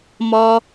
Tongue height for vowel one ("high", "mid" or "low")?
low